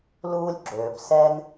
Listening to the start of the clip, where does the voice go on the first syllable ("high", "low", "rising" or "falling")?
high